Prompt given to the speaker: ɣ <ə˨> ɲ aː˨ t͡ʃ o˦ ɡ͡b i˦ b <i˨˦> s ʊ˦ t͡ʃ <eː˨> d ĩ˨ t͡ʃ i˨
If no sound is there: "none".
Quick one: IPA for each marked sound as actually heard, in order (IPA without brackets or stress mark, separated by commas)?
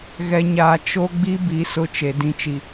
ɛ˨, i˨˦, e˨